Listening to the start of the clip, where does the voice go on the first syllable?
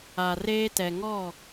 low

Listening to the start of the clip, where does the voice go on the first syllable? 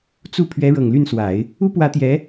falling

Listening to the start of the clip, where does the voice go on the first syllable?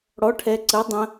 rising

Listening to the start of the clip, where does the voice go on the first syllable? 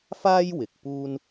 high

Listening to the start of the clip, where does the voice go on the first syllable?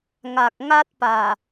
low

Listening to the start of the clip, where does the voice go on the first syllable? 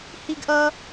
high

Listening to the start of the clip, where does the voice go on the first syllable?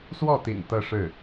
falling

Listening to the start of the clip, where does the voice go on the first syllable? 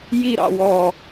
falling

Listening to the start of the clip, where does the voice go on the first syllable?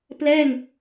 falling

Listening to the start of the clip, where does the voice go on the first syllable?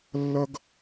high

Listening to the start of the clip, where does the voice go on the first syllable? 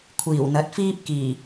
low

